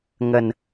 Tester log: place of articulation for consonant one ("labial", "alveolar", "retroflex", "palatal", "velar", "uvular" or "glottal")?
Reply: velar